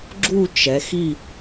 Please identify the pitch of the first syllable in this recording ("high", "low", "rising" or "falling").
falling